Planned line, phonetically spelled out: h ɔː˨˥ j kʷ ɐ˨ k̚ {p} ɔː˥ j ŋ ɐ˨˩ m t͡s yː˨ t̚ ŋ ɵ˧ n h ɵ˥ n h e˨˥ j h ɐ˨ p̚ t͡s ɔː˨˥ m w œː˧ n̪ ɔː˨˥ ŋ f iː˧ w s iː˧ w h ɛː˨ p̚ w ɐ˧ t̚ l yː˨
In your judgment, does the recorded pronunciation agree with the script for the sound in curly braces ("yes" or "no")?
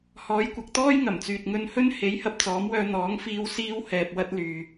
no